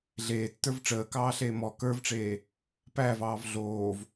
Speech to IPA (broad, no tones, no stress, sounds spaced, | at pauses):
ɮ eː tː ə˞ v ʈ͡ʂ əː k ɑː ɬ eː m ɔ k ə˞ v ʈ͡ʂ eː | p æ v ɑː v ɮ oː v